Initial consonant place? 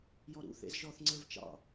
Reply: palatal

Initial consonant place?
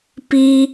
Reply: labial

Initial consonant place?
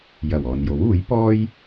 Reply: palatal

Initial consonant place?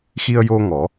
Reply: velar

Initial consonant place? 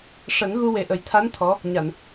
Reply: retroflex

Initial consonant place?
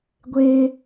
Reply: velar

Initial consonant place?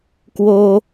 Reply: velar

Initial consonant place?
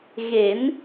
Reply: velar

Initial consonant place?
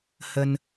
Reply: glottal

